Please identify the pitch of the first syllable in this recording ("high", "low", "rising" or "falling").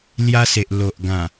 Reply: high